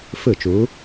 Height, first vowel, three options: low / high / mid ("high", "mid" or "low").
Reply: high